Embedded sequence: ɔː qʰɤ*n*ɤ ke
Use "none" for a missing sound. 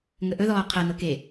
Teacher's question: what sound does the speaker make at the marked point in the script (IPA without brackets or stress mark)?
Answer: n